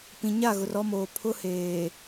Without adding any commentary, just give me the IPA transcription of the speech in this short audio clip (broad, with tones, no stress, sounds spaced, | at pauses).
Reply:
p ĩ˨ ɲ a˦˨ ɣ ʊ˨ r ɔ˦ m oː˨ pʰ ʊ˦ h eː˨